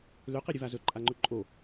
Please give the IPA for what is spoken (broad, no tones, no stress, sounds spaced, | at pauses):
l ø q i ɾʲ ɵ v a z ɵ ǃʼ a ŋ͡ǃ ɵ ǃʼ o